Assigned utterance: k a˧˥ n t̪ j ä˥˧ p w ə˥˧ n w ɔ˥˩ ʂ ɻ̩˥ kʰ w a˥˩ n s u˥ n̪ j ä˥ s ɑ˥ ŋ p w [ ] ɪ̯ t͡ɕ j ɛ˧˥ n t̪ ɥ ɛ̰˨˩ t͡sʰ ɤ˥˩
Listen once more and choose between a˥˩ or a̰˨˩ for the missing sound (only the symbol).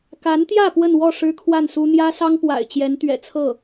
a̰˨˩